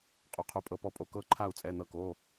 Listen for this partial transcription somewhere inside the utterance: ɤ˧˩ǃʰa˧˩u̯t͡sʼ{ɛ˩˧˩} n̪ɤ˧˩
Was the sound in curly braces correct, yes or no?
yes